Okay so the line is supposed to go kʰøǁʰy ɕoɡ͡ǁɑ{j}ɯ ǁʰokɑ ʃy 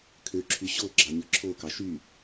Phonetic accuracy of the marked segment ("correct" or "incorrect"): incorrect